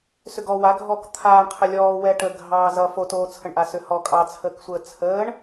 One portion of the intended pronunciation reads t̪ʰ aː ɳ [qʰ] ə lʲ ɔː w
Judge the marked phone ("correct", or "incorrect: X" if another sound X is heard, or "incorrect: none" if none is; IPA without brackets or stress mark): correct